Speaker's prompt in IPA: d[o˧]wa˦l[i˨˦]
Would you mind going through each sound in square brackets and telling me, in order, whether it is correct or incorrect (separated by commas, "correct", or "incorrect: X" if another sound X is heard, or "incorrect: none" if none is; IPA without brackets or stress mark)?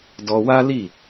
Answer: incorrect: ɔ˧, incorrect: i˦˨